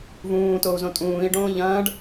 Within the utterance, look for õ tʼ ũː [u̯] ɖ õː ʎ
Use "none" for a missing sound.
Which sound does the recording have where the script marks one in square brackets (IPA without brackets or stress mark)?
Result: i̯